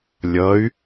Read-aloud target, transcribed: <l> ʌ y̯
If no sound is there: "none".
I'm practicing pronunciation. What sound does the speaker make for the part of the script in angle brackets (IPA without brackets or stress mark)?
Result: lʲ